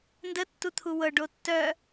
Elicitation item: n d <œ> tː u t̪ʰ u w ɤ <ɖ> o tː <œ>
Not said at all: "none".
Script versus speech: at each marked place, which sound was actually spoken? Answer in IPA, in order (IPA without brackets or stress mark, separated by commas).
ə, ɖ, œ